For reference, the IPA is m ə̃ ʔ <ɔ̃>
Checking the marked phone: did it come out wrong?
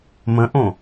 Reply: yes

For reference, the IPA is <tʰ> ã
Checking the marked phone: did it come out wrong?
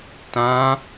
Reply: yes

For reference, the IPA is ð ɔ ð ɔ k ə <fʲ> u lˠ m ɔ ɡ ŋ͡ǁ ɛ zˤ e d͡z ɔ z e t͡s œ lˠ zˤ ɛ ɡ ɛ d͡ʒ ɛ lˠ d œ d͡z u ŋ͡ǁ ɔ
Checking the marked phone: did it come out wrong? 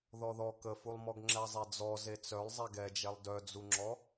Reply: yes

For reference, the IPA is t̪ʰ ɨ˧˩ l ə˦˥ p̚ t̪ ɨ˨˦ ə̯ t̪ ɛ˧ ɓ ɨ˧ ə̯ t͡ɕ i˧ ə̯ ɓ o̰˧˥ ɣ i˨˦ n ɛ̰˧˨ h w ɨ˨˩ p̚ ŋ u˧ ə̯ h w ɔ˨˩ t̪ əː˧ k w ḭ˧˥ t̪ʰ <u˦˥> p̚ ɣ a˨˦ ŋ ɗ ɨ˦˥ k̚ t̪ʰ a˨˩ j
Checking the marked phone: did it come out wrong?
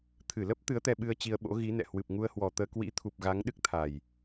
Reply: yes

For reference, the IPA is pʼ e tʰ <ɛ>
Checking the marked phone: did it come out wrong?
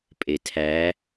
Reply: yes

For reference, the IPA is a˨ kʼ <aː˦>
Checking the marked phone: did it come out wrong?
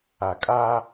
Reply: no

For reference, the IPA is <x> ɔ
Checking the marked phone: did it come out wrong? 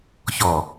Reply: yes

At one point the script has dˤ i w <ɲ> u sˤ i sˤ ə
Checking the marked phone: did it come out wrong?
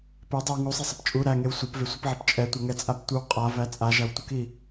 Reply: yes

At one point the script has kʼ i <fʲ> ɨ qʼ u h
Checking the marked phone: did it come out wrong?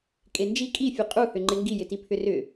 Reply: no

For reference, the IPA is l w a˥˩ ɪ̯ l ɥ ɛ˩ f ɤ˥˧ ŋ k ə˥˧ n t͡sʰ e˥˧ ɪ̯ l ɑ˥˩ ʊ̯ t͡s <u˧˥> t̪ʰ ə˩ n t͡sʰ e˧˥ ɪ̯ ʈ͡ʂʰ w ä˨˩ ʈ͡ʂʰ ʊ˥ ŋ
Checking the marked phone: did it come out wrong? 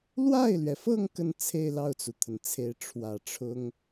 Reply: yes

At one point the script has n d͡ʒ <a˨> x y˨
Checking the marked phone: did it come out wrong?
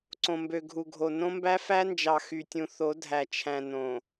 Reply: yes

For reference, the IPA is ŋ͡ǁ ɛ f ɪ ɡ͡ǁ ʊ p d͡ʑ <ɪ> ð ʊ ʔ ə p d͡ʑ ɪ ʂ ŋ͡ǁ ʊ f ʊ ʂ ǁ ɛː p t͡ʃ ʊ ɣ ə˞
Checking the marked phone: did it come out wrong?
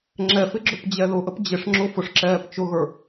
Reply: yes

